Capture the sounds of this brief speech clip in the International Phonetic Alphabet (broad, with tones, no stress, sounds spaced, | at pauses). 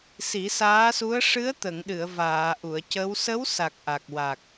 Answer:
s i˨˩˦ s aː˧˥ s u˧˥ ə̯ ʂ ɨ˧˥ ə̯ t̪ ə˨˩˨ ŋ ɗ ɨ˨˩˨ ə̯ v aː˨˩˨ ʔ u˨˩˨ ə̯ c ə˧˥ w s ə˧˥ w s a˨˩ k̚ ʔ a˨˩ k̚ w a˨˩ k̚